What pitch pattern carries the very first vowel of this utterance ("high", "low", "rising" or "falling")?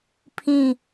falling